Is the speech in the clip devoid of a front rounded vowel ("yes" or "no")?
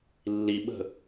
yes